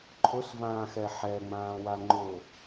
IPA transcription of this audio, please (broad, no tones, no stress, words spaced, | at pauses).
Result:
ǃʰʊsvãːxɛ ħɛŋ͡mãːwa ŋ͡ǃʊ